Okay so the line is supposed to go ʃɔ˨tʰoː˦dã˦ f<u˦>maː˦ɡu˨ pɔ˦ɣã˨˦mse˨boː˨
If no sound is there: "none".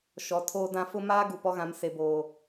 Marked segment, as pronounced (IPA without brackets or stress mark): ʊ˦